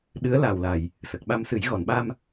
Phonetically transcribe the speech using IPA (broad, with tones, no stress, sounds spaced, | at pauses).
ɗ ɨ˧˥ ə̯ l a˨˩ w l a˨˩˨ j | s ə˨˩ k̚ ɓ a˧ m s ɨ˨˩˦ j ɣ ɔ˨˩˨ n ɓ a˧ m